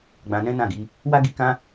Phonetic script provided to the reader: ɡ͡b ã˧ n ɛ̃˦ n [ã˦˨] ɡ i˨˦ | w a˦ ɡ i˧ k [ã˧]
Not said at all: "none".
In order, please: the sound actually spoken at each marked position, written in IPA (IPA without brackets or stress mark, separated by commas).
ã˦˨, ã˦